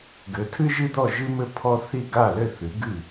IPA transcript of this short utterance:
ɡ ɘ˩˥ tʰ ɨ˦ ʒ ɨ˦ d̪ ɔ˥˩ ʒ ɨ˦ m ɘ˥˩ pʰ ɔ˦ θ i˥˩ ɡ a˥˩ l ɘ˥˩ θ ɨ˩˥ ɡ ɨ˥˩

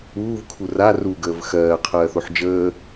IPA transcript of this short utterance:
uː v kʰ u r a r u ɡ əː v x ɜː qʰ ɜː θ o ħ d͡ʒ əː

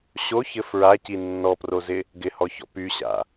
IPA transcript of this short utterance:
ɕ o ç ɘ f ɹ a c i nː ɔ p r o z ɪ | ɡ ɪ h ɔ ç ɔ̰ p y ɕ a̰

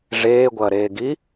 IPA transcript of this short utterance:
ʐ eː ɡʷ ɐː ɾ eː ɡ i

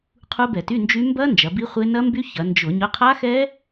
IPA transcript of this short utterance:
qʰ u˦˥ b ɛ˧˩˧ t y˧˥˧ n d͡ʒ y˦˥ m b ɐ˦˥ n d͡ʒ ɐ˩˧ b i˦˥ χʷ e˦˥ n ɐ˦˥ m b y˦˥ ç ɐ˩˧ n d͡ʒ ʊ˧˩˧ ɲ ʊ˧˥˧ qʰ a˦˥ x ɛ˦˥

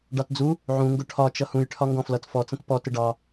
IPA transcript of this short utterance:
ɖ ɑ t d͡z u | ʕ ũ ŋ ɡ ʊ ʈʰ ɒ t͡ʃ ʌ h ũ j ʈʰ ɒ ŋ ɡ ɔ̃ f l ʌ t f ɔ t͡s ə̃ t p ɔ t ɪ ɖ ɑ

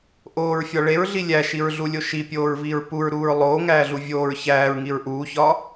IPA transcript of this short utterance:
ʔ oː ɹ fʲ ɒ ɭ e ɹ ɮ i lʲ æ ʃ i ɹ ɮ u lʲ o ʃ i pʲ oː ɹ v iː ɹ p u ɹ ɾ uː ɹ lˠ oː ŋ æː ɮ u vʲ oː ɹ ç æː ɹ ŋ i ɹ ʔ uː ç ɒː

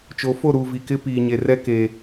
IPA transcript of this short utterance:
t͡ʃ o˨˦ f o˦˨ ɾ uː˨ v i˨ k ɪ˦ p iː˨ ɲ e˨ r ɛ˦ k e˨

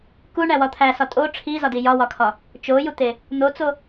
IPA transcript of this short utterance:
k u ɳ æ w ɒ t̪ʰ æ s ɒ tʼ o ʈ͡ʂʰ i z ɒ d i j ɒ w ɒ kʰ ɒ | t͡ʃ o j u t̪ e | n̪ o t͡s o

